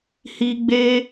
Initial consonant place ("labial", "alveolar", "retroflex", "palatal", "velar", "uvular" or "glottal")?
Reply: glottal